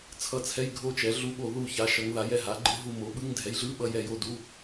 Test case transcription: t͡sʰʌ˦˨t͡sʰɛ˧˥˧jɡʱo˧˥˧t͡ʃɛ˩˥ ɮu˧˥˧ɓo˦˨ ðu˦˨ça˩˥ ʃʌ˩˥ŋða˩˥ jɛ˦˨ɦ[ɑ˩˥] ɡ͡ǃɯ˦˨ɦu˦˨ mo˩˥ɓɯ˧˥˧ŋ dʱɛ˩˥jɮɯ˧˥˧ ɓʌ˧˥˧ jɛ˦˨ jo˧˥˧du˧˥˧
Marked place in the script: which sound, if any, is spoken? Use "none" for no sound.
a˩˥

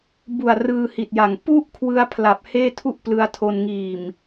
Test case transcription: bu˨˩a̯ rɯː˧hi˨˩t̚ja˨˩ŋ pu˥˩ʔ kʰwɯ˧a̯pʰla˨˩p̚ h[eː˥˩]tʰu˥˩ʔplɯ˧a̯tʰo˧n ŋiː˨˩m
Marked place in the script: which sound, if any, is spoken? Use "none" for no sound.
eː˥˩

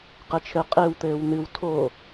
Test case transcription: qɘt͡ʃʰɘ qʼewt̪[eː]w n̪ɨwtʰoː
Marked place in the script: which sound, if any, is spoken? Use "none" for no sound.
ɘː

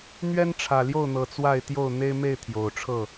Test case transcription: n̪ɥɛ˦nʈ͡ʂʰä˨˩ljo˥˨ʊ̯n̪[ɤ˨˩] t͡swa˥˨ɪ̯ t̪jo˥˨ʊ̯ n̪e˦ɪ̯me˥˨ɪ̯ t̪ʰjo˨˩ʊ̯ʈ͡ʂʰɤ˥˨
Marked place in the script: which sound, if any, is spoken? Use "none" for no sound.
ɤ˨˩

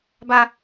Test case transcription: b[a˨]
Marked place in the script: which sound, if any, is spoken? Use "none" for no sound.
a˦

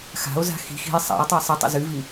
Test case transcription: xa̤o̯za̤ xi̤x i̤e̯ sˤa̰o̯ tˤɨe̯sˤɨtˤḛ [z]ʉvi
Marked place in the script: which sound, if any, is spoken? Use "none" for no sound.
z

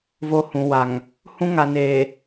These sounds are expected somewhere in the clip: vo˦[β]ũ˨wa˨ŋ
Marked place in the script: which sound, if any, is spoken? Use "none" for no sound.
h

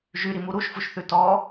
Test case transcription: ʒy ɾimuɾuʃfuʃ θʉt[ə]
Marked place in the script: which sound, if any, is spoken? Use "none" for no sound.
ɔ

